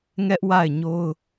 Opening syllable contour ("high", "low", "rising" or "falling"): high